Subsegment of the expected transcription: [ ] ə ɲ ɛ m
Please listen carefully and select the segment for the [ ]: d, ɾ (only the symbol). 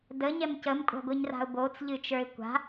d